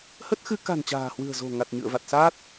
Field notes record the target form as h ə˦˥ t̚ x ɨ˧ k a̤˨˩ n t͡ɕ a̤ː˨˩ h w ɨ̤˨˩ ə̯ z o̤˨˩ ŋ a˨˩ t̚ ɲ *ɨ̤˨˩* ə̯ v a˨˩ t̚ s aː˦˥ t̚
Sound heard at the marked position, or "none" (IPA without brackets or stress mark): ɨ̰˧˨